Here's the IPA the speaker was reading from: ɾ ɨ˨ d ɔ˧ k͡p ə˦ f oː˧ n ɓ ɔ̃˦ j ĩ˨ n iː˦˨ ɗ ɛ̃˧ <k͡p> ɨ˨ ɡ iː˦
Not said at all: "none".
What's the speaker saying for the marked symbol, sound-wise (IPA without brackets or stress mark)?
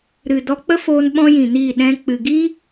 k͡p